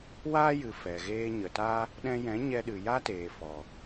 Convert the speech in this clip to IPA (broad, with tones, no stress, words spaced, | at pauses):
waː˦jɨ˨ fɛ˨ɣeː˦ ɲə˨ta˦ | ɗɛ̃˧jɛ̃˨˦ɲɛ˧ɗɨ˨ ja˦ teː˨fɔ˨